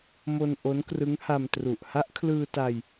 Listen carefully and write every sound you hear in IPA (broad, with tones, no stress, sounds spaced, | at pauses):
m o˧ n ʔ o˦˥ n k r ɯ˦˥ ŋ h a˧ m t r u˨˩ ʔ h a˦˥ ʔ kʰ l ɯː˧ t a˧ j